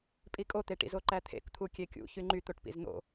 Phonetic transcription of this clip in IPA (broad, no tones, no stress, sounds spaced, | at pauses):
pʼ i kʼ o t̪ e ʈ ḭ z o ǃ æ t̪ʰ ḛ k t̪ʰ u kʲ e kʲ ṵ ç y ŋ͡ǃ y t̪ o ʈ p ḭ z n̪ o̰